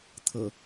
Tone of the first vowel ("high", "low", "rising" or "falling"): low